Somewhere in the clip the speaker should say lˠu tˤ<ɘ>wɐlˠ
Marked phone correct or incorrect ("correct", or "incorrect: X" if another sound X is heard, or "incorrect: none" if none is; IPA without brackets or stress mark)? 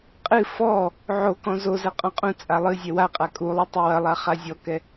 correct